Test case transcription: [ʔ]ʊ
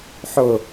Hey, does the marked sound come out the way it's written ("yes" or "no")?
no